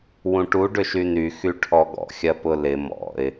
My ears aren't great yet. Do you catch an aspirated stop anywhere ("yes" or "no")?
yes